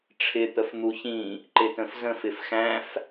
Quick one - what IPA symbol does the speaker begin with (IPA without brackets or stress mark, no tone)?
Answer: ʈ͡ʂʰ